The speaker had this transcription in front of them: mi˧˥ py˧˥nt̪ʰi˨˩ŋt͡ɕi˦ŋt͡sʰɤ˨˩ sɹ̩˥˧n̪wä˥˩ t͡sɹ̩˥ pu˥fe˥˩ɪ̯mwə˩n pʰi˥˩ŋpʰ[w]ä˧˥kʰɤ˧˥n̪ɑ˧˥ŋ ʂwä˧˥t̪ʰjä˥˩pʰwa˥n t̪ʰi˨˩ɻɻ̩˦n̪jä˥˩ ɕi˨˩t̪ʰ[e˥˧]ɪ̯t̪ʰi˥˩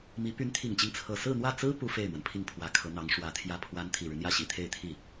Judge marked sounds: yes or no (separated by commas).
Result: yes, yes